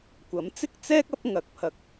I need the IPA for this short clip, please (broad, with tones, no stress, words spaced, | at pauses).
kʷɐ˨˥mt͡sɪ˥k̚t͡sɛː˥k̚ ɐ˥p̚ ŋɐ˨˥k̚pʰɐ˨k̚